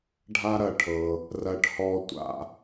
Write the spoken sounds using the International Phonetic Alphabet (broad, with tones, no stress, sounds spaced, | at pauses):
ɖʱ a˦ ɾ ɐ˦ ʈʰ ɤ˧ | r ɐ˦ ʈ h ɔ˦ tʷ a̰˦